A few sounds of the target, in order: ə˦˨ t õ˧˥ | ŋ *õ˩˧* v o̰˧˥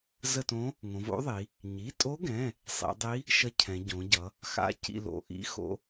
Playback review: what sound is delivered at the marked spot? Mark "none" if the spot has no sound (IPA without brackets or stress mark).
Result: õ˩˧